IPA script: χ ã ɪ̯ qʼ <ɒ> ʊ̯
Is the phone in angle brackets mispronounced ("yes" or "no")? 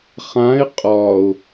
no